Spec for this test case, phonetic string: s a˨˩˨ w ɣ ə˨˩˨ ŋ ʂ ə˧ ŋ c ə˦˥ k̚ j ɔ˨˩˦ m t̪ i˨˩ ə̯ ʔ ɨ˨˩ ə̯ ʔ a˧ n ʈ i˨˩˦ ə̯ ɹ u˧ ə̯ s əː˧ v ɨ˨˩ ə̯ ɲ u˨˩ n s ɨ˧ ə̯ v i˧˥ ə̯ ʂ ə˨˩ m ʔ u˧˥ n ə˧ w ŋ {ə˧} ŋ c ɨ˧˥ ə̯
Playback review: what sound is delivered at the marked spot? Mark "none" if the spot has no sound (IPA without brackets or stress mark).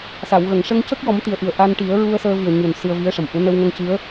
ə˧